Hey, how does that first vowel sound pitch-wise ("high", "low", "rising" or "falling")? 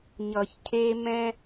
low